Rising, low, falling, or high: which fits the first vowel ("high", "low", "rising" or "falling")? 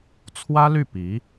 high